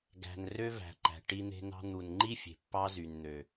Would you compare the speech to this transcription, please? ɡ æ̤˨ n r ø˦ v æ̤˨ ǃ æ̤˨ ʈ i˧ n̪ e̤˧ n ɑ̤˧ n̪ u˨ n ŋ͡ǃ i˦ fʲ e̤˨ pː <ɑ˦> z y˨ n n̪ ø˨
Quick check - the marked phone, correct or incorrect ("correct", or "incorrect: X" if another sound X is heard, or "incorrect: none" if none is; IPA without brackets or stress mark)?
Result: correct